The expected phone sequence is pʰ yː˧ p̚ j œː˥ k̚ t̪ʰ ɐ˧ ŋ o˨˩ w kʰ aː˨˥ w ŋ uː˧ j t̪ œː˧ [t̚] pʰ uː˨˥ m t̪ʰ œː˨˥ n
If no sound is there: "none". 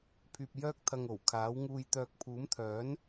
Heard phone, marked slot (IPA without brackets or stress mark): k̚